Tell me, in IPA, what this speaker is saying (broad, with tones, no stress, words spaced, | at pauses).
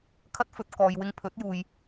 kʰɐ˥t̚fɵ˧t̚ kɔː˨jwɪ˧ŋ pʰɵ˨˥t̚juː˨j